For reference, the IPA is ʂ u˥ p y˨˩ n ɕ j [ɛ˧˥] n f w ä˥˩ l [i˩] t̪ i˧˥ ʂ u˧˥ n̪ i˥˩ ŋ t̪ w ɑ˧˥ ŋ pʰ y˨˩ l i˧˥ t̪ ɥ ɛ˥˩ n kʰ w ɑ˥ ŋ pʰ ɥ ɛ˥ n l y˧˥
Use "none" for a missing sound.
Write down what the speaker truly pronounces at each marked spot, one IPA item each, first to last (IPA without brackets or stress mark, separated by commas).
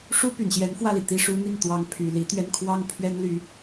ɛ˧˥, i˩